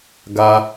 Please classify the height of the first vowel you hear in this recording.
low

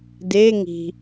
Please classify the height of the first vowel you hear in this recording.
mid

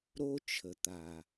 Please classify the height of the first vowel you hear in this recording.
mid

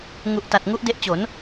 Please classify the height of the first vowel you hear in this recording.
high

